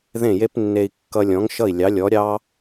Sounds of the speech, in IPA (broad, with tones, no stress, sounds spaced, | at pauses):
ð ẽ˥˩ j e˥ p nː e˧ i̯ kː ʌ˧ lʲ ɔ̃˩˥ ŋ ʃ ʌ˥˩ i̯ lʲ ɑ˩˥ lʲ ɔ˩˥ ɾʲ ɑ˥